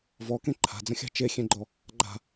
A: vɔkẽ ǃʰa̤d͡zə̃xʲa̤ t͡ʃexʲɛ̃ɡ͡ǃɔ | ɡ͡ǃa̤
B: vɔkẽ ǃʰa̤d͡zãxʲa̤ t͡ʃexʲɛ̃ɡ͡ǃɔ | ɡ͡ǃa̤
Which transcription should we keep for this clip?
A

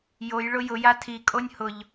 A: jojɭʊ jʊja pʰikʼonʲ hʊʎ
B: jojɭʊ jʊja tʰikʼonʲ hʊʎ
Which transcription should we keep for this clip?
B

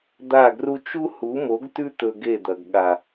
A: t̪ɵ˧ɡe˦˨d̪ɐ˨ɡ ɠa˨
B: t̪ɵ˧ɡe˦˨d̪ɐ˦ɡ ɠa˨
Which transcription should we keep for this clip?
A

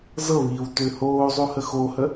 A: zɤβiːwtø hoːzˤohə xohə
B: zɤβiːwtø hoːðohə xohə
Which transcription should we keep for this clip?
A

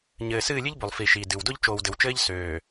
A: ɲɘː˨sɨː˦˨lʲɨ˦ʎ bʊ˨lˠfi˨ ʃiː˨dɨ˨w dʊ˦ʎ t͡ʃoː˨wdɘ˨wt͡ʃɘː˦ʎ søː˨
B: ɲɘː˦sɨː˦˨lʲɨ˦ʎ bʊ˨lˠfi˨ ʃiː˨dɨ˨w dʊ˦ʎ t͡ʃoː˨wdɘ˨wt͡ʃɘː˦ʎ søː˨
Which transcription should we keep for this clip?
A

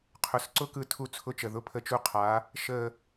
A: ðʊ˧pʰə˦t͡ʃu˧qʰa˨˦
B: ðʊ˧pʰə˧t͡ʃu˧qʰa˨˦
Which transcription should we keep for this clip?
B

